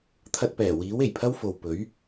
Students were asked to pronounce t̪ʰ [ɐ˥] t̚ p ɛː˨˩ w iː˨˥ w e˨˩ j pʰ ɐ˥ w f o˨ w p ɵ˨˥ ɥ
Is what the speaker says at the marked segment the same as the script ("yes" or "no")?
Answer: no